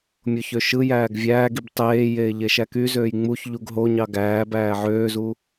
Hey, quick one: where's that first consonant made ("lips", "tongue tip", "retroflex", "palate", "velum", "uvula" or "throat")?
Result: lips